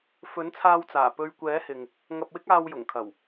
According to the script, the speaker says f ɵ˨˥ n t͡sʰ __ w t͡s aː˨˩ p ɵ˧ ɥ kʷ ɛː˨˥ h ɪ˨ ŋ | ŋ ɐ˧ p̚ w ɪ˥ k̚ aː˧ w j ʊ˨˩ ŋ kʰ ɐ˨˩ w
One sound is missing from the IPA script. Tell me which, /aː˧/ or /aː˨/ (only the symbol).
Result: aː˧